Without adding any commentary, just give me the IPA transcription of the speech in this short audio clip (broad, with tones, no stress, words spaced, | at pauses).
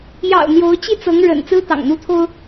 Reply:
jɑ̰˨˩ʊ̯ n̪jo˧˥ʊ̯t͡ɕi˥˩t͡sɤ˧˥ŋ ɻə̰˨˩n t͡sɹ̩˥t̪ɑ̰˨˩ŋn̪u˥t̪ʰo˥ʊ̯